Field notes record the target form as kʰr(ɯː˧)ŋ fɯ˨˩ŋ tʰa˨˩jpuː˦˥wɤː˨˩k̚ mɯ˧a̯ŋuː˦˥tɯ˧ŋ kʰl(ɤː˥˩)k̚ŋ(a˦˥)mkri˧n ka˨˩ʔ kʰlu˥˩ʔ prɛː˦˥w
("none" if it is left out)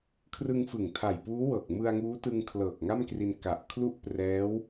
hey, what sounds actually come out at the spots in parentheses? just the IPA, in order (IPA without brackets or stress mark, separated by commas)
ɯ˧, ɤː˨˩, a˥˩